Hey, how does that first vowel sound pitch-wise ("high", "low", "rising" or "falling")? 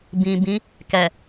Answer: low